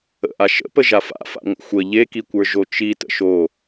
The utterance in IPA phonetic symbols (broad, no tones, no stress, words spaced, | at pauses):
ə̰ʔa ʃə̰pə ʒafa̰fa̰ ŋʷə̰xʷə ʎekikʷə˞ ʒot͡ʃi tə̰ʃo